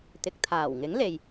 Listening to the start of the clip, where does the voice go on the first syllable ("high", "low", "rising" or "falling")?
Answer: low